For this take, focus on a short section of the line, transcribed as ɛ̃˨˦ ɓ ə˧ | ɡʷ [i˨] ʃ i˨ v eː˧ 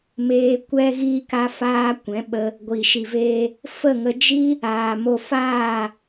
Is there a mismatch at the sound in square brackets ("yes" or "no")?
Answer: no